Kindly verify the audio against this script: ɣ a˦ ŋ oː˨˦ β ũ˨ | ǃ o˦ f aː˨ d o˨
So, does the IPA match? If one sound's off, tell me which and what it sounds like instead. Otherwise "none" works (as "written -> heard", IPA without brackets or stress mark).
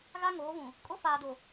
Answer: ǃ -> kʼ